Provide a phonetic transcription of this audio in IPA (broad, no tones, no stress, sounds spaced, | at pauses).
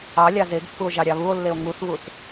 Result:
ɑ lʲ ɑ z e ɡ pː u o̯ ʒ ɑ ɾʲ ɑ β u o̯ lː e o̯ ŋ u θ β u θ